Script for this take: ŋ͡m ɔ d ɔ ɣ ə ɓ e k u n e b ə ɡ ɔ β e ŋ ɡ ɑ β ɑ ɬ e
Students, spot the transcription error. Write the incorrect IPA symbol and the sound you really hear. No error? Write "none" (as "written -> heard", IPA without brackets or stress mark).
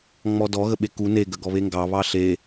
b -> ɡ